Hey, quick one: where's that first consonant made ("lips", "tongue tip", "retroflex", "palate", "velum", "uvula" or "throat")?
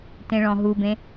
tongue tip